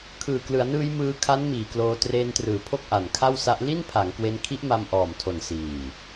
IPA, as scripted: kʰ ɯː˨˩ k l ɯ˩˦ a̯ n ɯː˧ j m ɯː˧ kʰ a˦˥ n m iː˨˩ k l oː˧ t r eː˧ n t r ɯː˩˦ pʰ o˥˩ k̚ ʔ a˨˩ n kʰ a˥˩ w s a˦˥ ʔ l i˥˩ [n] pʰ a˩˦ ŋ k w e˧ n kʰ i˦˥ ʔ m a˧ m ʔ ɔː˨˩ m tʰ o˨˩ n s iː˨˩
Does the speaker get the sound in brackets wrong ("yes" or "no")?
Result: no